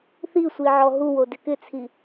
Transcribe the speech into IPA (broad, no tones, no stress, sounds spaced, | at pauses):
θ i sʷ i ʕ ɔ ɦ u w o d ɪ k ɪ t͡sʰ i